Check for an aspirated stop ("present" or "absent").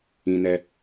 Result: absent